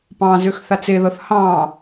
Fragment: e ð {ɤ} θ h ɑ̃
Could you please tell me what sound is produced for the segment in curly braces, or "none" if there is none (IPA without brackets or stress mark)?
ɤ